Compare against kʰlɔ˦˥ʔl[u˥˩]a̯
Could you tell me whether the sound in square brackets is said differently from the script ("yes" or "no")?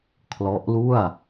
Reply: no